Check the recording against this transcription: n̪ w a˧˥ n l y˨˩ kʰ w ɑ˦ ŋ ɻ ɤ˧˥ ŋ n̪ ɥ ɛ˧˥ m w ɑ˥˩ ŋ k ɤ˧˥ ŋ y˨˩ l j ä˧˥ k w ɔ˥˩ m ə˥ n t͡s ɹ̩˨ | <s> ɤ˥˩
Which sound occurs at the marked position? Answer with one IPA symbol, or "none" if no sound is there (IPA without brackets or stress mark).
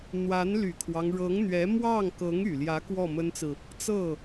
t͡s